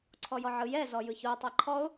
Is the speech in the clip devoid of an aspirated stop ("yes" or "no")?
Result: no